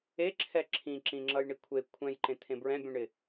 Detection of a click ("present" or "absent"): present